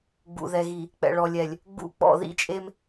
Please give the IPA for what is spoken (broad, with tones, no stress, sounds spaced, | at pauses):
ɡ͡b ṵ˨ ð ɛ˨ ɣ i˨ | k͡p ɛ̰˨ ɭ ɔ˨ lʲ ɛ˨ lʲ | ɡ͡b ṵ˦˨ k͡p ɔ̰˦˨ ð ḭ˦ t͡ʃʼ e˦ m